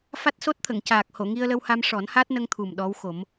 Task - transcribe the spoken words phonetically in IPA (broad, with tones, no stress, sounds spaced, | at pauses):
f a˦˥ t̚ s o˦˥ t̚ t̪ʰ ə˨˩˨ ŋ c aː˨˩ k̚ h o˨˩˨ ŋ i˧ ə̯ l ə˧ w h a˧ m ʂ ɔ˨˩˦ n h a˦˥ t̚ n ə˧ ŋ t̪ʰ u˨˩ m ɗ ɔ˧˥ w x o˨˩˦ m